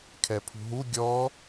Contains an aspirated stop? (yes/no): yes